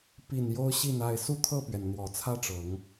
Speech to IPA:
p i˨˩ n j o˦ ʊ̯ ɕ i˥˨ n a˥˨ ɪ̯ s u˥˨ t̪ʰ ɤ˥˨ p ɥ ɛ˩ n n̪ w ɔ˨˩ t͡sʰ ä˦ ʈ͡ʂ ɤ˨˦ ŋ

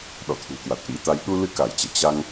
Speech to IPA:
ɗ ɔ̰˧˨ t̪ʰ ṳ˨˩ k w a˨˩ t̚ ʔ ḭ˧˥ t̪ a˧ j ɗ u˧ l ɨ˧ k a˧˩ j t͡ɕ ɛ̰˧˨ t͡ɕ a˧ ŋ

